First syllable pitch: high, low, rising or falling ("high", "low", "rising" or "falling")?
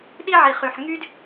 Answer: high